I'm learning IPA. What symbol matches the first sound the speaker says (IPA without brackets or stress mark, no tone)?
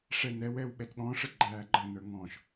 ʂ